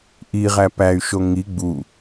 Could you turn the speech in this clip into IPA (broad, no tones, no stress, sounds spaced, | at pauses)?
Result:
ʔ i ʁ æ p æ y̯ ʃ o ŋ i ɡ͡b u